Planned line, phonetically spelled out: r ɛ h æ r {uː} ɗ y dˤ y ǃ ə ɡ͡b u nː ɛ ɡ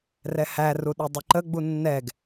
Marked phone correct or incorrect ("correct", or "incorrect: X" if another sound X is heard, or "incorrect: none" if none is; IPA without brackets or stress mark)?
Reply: incorrect: u